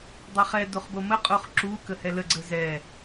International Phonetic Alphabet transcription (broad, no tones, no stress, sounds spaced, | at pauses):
dˤ ɛ χ ɛ d o χ b o m ə qʼ o χ ǁ u k ə h ɛ l ə ɡ͡ǀ ə z ɛ